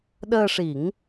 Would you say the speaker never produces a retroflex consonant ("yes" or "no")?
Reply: no